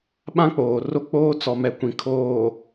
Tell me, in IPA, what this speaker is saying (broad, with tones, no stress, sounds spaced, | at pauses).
ɓ ã˦ k͡p oː˨ r o˦ k͡p oː˦ t͡s ɔ˨ m ɛ˨ kʷ ĩ˨ kʰ oː˨